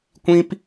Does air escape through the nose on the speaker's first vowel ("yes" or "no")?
yes